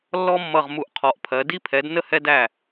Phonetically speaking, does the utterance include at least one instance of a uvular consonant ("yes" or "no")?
yes